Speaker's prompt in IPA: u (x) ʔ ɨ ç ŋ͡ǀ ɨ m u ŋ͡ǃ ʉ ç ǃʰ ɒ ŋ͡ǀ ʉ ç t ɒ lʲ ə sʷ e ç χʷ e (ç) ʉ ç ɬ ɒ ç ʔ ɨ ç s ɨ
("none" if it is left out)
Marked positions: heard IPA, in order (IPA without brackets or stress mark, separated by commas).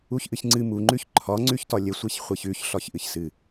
ç, ç